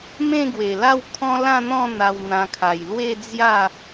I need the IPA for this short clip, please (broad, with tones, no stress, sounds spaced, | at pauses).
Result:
m ẽ˥˧ ɡ w e˨˩ l a˥˧ w kʰ ɔ̃˦ l ã˥˧ n̪ ɔ̃˥˧ n̪ a˧ w n̪ ã˧ kʰ a˨˩ j l w e˥˧ d͡z j a˥˧